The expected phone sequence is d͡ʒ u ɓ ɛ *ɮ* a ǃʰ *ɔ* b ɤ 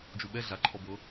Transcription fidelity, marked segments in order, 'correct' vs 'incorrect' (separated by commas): correct, correct